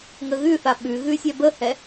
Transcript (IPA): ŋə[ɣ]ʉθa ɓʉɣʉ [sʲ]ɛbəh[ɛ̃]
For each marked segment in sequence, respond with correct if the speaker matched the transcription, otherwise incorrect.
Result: correct, correct, incorrect

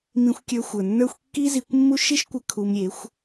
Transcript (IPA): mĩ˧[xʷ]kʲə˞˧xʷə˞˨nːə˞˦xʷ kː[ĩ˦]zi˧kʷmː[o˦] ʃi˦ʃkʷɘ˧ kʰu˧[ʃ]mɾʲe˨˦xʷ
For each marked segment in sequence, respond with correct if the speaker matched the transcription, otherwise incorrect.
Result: correct, incorrect, incorrect, incorrect

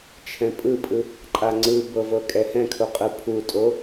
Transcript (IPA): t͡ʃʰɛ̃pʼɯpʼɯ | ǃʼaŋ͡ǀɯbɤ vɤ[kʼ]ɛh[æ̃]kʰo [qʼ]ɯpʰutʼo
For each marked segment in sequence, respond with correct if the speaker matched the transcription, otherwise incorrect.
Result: correct, incorrect, correct

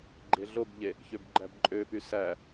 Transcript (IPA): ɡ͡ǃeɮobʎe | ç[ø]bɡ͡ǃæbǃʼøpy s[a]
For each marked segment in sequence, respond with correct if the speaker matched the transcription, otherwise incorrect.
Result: correct, incorrect

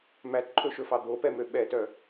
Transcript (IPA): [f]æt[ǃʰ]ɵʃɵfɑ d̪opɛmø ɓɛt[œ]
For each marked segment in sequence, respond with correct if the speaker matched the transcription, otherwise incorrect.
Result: incorrect, correct, correct

